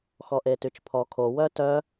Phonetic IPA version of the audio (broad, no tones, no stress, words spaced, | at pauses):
xɔʔetyt͡ʃpʰɔ kʰo wœtœ